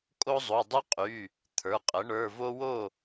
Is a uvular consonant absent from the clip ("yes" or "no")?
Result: no